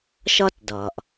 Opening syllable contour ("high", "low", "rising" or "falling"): high